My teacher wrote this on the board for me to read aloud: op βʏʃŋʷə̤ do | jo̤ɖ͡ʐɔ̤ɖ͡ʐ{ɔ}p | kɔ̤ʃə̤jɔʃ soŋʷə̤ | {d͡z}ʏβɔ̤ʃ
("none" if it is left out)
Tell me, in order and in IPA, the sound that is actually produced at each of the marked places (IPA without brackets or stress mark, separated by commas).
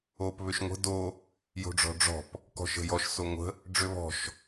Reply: ɔ̤, ɖ͡ʐ